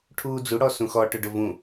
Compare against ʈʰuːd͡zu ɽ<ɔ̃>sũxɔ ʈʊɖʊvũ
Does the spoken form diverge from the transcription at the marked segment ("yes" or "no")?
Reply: yes